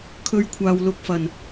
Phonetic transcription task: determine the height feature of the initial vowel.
mid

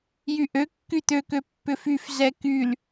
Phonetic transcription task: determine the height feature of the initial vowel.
high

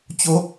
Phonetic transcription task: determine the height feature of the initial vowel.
mid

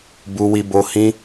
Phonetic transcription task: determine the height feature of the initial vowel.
high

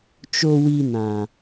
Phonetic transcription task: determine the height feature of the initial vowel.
mid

